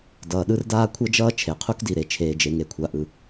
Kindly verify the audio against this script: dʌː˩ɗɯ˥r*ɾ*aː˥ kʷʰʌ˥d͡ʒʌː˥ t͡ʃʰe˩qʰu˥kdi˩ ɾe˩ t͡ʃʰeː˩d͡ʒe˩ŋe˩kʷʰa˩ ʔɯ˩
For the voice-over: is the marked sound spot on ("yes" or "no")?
no